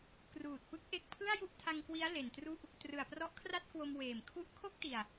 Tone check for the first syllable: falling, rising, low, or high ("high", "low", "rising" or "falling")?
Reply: low